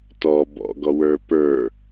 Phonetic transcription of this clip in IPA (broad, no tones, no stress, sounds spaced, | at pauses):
t ɔ b ɔ̰ ɡ ɔ w ə˞ p ə˞